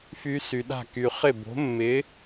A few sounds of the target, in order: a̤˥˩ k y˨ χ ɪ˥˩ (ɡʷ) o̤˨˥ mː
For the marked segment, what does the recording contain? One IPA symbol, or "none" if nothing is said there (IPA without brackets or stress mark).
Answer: b